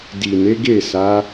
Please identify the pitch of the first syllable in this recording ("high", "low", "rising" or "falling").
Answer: low